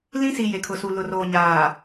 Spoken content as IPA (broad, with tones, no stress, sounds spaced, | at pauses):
l ĩ˦ s i˨ j e˨ kʰ ʊ˨ s u˨ l ʊ˨ r oː˨ ɲ aː˨